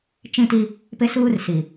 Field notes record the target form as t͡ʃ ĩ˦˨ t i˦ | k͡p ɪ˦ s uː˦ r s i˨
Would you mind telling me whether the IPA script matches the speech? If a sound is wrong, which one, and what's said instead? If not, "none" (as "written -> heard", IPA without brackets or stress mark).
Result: k͡p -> p